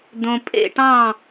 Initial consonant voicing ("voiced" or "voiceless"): voiced